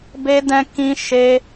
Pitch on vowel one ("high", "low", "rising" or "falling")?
high